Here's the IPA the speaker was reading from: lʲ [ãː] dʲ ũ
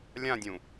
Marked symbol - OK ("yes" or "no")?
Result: no